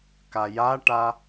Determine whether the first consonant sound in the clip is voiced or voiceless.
voiceless